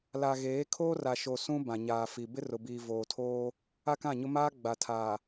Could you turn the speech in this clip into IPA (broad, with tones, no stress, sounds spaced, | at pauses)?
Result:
l a˨ ɣ eː˨˦ kʰ oː˦ r a˨ ʃ o˨ s ũ˦ b ã˨ ɲ aː˨ f i˨ b ɪ˦ r ʊ˨ b iː˨ v oː˨ tʰ oː˦ | a˦ k ã˦˨ ɲ ʊ˦ m aː˦ ɡ͡b a˨ tʰ aː˨